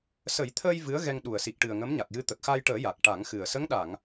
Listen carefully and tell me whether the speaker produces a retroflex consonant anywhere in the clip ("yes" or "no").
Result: yes